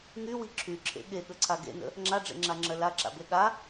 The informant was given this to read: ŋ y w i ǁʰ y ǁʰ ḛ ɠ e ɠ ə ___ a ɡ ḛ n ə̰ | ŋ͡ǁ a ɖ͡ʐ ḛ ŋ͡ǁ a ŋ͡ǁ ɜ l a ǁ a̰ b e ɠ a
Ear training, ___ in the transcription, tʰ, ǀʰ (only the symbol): ǀʰ